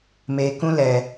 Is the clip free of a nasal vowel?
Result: no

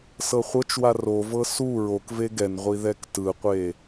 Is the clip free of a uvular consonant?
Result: no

